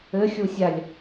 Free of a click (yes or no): yes